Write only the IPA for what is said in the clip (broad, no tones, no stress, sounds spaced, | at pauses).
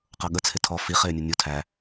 q ʌ ɠ ə t͡sʰ ɪ tʰ ɔ f i χ ɪː nʲ ʊ nʲ u tʰ æ